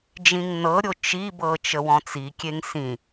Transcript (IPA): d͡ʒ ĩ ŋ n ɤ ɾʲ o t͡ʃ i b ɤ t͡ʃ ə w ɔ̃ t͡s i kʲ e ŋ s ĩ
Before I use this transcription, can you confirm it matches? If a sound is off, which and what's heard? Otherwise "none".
none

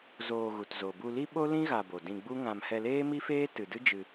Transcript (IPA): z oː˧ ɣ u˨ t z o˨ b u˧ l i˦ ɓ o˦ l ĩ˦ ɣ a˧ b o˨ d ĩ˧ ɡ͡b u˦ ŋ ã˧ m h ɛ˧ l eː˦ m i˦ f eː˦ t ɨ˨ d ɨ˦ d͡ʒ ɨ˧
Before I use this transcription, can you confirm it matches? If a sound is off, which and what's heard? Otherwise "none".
none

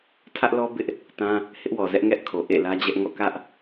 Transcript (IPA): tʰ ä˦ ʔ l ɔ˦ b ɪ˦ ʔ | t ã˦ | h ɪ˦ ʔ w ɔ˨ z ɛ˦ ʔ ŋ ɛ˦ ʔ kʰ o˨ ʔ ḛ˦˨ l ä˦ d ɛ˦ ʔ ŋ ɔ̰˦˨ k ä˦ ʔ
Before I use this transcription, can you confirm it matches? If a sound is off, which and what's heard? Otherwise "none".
d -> d͡ʑ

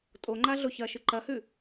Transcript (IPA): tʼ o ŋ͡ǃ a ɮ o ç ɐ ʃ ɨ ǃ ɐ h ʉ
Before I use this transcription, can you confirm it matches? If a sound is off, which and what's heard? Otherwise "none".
none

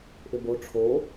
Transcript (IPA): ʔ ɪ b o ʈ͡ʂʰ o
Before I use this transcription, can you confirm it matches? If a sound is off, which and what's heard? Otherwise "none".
none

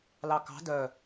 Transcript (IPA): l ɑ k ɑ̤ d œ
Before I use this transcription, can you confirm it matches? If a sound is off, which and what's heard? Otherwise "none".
none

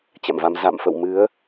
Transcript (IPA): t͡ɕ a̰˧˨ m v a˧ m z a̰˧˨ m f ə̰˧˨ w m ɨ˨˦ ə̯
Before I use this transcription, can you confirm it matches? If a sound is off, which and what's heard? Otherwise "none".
none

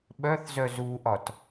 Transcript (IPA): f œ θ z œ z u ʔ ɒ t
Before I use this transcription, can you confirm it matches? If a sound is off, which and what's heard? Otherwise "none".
f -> ɓ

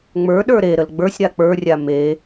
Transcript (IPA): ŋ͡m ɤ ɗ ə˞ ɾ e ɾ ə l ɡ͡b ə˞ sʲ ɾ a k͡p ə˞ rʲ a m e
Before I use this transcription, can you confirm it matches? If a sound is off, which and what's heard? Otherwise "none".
ɤ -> ə˞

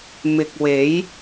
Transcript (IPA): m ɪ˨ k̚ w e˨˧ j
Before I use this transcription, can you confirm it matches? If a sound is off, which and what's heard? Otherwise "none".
none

